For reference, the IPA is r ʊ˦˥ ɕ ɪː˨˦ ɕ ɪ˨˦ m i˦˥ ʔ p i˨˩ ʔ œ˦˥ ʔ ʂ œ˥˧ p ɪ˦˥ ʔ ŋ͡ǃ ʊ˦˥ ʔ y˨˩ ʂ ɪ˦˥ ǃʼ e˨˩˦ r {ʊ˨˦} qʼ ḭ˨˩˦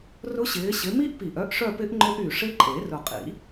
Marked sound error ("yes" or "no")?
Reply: yes